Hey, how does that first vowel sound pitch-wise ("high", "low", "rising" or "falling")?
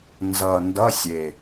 low